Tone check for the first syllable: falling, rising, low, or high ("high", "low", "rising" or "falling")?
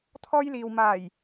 high